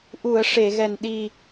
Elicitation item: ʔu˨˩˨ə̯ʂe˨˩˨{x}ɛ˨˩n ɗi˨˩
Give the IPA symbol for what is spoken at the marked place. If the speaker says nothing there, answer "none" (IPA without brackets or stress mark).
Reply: ɣ